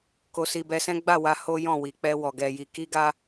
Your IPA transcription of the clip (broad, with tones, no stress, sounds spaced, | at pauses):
k o˧ s i˧ b ɛ˧ s ɛ̃˦ ɡ͡b a˦˨ w a˧ h o˦ j ɔ̃˦˨ w i˨ k͡p ɛ˧ w ɔ˨ ɡ ɛ˧ j i˧ k i˦ ɡ a˦